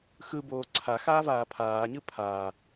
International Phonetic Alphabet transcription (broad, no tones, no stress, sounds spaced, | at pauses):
x ɯ b oː ǀʰ a x aː v aː pʰ aː ɲ ɯ pʰ aː